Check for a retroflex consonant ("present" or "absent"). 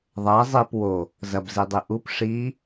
present